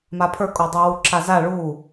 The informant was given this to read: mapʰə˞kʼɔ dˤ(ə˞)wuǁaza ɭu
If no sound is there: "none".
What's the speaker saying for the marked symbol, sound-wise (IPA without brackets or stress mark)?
ə˞